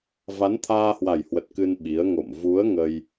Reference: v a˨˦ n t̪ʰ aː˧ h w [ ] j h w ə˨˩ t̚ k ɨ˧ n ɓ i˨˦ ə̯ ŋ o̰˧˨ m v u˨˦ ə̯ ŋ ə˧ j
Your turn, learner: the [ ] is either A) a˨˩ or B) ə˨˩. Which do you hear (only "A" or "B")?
A